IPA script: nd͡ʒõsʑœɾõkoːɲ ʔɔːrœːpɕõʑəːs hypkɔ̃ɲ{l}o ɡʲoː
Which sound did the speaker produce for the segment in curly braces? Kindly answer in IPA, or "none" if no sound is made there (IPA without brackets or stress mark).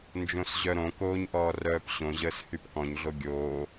ɮ